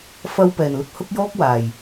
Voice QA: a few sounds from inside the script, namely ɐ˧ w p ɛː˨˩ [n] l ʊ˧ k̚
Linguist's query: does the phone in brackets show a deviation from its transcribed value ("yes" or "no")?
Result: no